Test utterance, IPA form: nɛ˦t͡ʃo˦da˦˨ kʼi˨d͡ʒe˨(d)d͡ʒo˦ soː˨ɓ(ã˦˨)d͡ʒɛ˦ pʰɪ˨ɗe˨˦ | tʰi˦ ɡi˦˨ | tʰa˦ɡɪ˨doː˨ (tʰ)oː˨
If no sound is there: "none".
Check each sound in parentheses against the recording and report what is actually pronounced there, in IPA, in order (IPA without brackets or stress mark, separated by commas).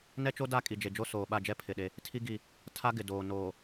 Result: none, a˦˨, n